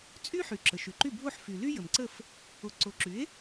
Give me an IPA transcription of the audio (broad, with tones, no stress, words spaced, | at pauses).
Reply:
t͡sʼy˥ħy˩ ǁə˩ʃy˩ǃy˥˩ bʱo˥˩ħfy˩ly˥ jə˩mǀə˥˩f | o˩˥ǀo˩˥ǁy˩˥e̯